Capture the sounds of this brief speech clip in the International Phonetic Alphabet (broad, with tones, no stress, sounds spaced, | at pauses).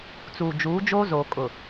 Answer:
t͡s uː˨ d͡ʒ uː˨˦ d͡ʒ oː˦ z oː˨ kʼ ʊ˨